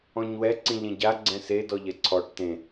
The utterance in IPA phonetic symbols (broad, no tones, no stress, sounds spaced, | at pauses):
ɔ̃ ɲ w ɛ ǀ ĩ ʎ ẽ ɟ a ɡ͡ǀ ɛ̃ s e d ɔ ʎ ɛ ǀʰ ɔ ʈ t ẽ